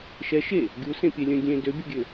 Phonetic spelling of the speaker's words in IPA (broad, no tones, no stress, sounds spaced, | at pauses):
ʃ ɛ ʃ e | ɡʲ u s ẽ pʲ ɛ lʲ œ̃ ɡʲ ẽ d ø bʲ ɔ ɡʲ ø